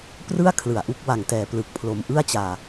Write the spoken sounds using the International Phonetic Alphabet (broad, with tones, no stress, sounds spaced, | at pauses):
p r ɯ˥˩ a̯ kʰ l ɯ˨˩ a̯ ʔ u˦˥ k̚ w a˨˩ ŋ t ɛː˨˩ p l ɯ˨˩ k̚ pʰ l o˧ m ʔ ɯ˥˩ a̯ t͡ɕ aː˧